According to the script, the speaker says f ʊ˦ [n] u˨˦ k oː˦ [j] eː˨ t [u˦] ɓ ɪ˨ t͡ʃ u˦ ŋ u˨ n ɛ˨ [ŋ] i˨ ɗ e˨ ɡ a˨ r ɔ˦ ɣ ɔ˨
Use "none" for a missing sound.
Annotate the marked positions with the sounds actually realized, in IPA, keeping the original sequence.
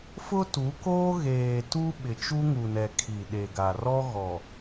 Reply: t, ɣ, u˦, kʰ

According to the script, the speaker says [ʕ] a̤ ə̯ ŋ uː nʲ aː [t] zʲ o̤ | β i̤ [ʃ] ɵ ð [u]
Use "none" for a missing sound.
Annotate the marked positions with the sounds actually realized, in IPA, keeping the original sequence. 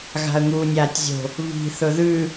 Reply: ɣ, tʲ, θ, ʉ

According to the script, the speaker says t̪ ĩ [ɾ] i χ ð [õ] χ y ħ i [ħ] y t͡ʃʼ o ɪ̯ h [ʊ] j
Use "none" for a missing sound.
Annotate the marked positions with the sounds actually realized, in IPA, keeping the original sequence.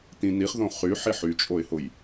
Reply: n̪, õ, ħ, ʊ

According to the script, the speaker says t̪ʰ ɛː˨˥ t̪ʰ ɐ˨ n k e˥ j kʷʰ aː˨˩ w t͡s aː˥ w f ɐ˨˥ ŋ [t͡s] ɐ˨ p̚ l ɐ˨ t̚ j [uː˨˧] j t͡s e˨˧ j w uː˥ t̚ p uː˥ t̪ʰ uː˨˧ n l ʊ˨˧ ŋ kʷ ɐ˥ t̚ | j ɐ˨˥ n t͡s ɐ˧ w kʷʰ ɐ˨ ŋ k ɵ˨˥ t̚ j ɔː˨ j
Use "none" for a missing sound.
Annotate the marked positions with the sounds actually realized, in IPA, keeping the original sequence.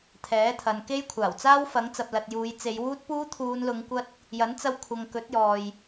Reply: t͡s, uː˨˧

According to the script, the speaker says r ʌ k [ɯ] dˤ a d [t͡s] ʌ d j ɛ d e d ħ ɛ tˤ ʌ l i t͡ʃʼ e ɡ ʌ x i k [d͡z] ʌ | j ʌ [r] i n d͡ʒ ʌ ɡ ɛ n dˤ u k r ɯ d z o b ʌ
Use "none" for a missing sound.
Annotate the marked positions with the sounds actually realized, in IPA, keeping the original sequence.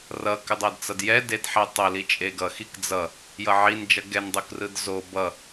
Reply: ɯ, t͡s, d͡z, ʕ

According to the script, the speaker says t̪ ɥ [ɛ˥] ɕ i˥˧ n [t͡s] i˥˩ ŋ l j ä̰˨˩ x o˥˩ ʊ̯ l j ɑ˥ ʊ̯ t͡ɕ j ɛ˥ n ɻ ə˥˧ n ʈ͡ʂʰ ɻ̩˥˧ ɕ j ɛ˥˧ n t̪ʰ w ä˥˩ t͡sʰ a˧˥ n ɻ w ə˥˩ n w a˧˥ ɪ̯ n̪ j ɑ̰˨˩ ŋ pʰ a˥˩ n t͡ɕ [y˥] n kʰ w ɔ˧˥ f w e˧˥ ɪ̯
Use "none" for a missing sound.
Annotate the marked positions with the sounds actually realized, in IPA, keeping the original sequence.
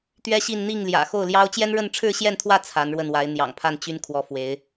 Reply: ɛ˥, n̪, y˥

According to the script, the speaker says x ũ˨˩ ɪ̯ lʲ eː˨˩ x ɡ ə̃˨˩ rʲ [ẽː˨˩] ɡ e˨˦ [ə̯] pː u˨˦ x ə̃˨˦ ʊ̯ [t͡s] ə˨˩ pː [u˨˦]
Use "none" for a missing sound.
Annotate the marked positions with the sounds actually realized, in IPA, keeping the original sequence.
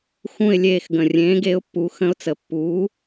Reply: ẽː˨˦, ʊ̯, t͡s, uː˨˦

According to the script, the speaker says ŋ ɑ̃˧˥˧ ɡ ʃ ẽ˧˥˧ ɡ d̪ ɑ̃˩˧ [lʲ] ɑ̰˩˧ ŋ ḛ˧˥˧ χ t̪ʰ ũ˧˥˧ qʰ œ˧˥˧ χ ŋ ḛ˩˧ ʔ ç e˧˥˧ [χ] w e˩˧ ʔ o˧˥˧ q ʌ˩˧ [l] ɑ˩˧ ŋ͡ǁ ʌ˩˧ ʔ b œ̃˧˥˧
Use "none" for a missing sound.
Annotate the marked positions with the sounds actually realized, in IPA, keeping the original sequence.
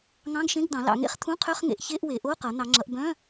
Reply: l, ʔ, n̪

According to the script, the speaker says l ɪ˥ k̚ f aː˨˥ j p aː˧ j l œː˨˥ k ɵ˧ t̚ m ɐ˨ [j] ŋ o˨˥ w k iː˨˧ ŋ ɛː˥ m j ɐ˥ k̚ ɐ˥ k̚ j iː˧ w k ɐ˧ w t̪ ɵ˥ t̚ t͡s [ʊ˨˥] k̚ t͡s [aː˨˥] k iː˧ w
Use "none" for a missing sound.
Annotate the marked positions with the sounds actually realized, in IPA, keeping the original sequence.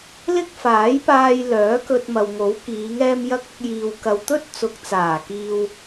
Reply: w, ʊ˨˥, aː˨˩

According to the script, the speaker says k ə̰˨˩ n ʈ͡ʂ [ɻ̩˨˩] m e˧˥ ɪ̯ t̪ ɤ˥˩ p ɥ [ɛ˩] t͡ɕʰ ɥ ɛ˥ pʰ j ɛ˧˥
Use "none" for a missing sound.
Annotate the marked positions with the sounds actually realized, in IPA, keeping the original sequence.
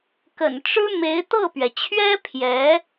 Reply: ɻ̩˥, ɛ˩

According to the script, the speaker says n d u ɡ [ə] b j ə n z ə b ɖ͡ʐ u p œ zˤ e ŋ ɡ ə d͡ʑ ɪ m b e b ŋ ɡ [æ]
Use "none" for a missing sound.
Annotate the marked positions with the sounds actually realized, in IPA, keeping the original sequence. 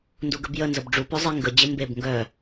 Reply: ə, œ

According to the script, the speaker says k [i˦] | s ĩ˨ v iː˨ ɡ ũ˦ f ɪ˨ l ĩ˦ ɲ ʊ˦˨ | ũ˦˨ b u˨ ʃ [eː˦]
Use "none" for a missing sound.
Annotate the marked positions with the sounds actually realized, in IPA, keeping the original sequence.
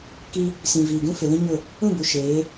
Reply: i˦, eː˨˦

